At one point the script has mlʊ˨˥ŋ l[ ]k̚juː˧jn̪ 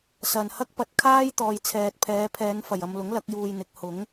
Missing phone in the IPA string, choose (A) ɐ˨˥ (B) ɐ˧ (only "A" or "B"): A